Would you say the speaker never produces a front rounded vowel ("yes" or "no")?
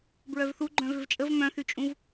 no